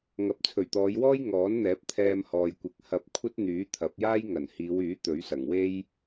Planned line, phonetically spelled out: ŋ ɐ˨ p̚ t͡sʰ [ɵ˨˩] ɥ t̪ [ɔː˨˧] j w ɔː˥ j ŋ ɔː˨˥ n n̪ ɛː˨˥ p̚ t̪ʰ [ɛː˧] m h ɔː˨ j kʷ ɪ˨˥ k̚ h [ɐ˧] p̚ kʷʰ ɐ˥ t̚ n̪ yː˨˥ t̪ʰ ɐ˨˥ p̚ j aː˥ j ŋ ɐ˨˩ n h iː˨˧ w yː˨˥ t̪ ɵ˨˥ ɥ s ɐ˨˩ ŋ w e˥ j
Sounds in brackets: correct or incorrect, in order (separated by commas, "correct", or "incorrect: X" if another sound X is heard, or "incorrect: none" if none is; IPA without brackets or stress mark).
correct, correct, correct, correct